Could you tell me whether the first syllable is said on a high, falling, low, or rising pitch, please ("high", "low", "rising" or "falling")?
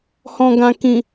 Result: low